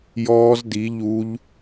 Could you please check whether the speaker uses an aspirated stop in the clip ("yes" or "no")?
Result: no